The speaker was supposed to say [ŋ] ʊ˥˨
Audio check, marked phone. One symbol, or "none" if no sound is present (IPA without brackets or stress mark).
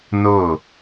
n